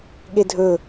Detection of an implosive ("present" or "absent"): present